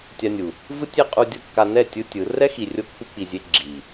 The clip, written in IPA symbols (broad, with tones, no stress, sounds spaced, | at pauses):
tʲ a˧ nʲ u˨ | v ɯ˦ tʲ e˦ qʼ u˧ dʲ ɤ˧ kː a˧ n ɛ˦˨ tʲ ɯ˦ tʲ ɯ˨˦ r ɛ˦ x i˨ rʲ o˦ kː u˦ k͡p i˧ zʲ e˦ ɡ͡ǁ i˨